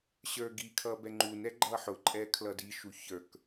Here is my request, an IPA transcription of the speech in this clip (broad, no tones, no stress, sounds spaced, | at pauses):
ɕ ə˞ ɡ i kʰ ʌ b ɛ ŋ͡ǃ u n ɛ ɡ͡ǃ ʌ ħ ʊ ǃʼ ɛ kʰ l ʌ d i ʃ u ç ə˞ k